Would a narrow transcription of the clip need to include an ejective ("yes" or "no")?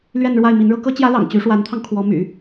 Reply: no